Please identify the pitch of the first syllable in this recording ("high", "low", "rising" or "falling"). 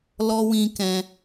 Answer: high